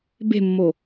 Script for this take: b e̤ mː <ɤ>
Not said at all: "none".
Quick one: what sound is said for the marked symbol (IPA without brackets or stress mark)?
o